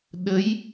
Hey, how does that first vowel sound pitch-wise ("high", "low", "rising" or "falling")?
rising